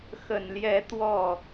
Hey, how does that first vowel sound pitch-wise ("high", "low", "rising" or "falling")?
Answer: low